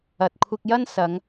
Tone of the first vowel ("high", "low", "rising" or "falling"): low